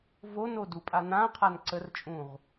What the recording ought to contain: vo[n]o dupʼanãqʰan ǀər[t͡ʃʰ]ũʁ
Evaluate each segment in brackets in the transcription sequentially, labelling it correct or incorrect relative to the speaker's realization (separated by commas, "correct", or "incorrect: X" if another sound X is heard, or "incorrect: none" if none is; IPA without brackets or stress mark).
correct, incorrect: t͡ʃʼ